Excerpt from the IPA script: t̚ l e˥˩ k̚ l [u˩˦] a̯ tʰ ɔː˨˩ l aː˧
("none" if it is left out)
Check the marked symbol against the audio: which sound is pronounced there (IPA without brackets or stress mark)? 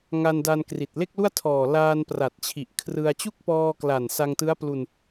u˥˩